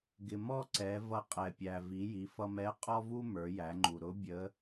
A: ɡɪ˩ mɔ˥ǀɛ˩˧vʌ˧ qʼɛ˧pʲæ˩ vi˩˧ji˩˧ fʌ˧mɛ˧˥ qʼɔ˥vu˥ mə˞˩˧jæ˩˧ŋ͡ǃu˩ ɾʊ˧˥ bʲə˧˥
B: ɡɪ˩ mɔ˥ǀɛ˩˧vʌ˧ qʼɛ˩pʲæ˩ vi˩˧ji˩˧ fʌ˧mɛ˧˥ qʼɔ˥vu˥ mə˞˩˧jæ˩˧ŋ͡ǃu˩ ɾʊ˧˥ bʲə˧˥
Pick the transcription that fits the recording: B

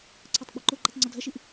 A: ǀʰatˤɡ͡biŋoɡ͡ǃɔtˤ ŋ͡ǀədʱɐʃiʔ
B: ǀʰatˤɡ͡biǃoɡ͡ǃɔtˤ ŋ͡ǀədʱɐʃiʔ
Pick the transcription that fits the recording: B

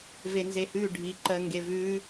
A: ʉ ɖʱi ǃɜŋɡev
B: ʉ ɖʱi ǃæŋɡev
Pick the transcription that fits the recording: A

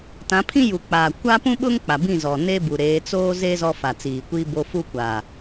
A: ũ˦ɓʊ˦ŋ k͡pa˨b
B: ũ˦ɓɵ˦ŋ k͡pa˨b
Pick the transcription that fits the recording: A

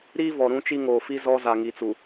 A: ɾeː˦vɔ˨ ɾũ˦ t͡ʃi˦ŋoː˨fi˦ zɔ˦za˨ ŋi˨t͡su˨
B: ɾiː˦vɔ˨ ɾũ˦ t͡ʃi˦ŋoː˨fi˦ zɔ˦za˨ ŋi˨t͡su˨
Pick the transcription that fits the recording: B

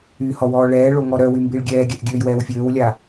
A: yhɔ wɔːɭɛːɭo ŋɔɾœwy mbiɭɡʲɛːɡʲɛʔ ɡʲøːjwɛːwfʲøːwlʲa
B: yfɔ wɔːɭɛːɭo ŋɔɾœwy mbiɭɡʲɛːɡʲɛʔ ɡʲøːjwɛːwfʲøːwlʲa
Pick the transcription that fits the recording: A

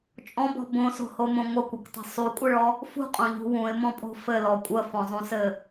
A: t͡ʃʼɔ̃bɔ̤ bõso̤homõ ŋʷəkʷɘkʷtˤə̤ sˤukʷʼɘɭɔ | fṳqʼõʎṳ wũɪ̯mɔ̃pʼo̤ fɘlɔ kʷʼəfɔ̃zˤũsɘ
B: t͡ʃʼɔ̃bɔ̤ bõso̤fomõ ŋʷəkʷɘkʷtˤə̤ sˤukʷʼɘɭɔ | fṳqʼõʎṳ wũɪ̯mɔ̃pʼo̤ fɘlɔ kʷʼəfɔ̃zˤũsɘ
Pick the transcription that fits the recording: A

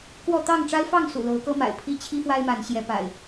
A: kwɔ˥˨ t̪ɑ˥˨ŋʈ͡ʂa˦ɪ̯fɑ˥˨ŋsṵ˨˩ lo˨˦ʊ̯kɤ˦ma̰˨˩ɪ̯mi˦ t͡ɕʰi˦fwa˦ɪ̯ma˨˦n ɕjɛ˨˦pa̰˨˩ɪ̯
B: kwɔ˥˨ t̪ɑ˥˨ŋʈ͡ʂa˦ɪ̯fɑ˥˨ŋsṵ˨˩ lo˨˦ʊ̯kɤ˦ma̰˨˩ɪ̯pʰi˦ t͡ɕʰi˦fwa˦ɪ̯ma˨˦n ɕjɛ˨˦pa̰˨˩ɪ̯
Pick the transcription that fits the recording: B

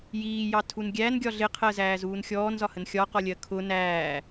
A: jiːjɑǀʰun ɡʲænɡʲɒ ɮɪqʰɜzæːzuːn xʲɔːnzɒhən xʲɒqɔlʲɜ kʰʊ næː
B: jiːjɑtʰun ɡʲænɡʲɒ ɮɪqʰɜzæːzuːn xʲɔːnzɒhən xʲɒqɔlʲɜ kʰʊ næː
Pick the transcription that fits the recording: B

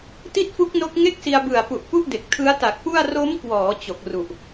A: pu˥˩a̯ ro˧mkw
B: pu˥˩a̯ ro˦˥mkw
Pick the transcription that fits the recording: B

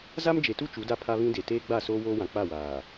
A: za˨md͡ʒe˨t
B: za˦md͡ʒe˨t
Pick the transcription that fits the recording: B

